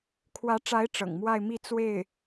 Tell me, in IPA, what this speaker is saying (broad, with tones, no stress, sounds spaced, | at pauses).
kʰ w ä˧˥ ʈ͡ʂ a˧˥ ɪ̯ ʈ͡ʂ ɤ̰˨˩ ŋ m w a˥˧ ɪ̯ m i˥˧ t͡s w e˥˩ ɪ̯